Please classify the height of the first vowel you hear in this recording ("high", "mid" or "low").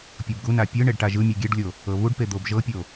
mid